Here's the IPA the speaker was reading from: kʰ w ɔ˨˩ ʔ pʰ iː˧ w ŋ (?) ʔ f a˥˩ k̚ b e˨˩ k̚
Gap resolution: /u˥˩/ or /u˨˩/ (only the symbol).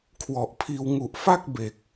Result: u˨˩